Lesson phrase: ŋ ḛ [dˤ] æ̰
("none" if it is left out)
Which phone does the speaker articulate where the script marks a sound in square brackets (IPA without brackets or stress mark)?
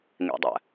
dˤ